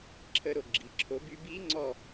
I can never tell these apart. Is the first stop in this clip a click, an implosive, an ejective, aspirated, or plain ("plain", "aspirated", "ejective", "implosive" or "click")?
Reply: click